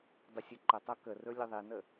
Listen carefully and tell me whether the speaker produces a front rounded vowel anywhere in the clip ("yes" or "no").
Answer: no